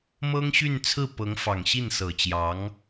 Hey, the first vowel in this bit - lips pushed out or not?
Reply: no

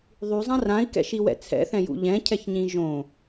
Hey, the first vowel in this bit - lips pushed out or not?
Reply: yes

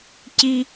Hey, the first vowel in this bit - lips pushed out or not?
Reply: no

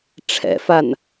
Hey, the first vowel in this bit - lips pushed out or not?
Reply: no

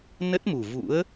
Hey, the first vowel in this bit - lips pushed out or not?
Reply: no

